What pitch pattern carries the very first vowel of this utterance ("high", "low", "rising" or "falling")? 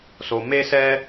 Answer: low